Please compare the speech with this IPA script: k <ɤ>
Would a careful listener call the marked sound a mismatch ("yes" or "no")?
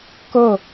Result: no